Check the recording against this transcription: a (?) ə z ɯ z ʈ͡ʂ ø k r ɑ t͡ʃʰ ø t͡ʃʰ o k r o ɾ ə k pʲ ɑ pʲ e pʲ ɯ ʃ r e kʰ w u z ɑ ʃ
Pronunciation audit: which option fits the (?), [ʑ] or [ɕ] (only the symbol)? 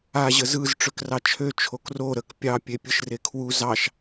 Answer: ʑ